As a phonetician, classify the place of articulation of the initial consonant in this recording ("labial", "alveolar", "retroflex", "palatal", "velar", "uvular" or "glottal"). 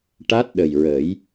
retroflex